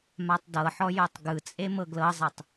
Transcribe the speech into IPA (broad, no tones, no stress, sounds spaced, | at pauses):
m a tˤ d ɤ ħ ɔ j o tˤ ɡ ɯ t͡sʼ e m ɤ ɡ l ɤ zˤ ɛ tˤ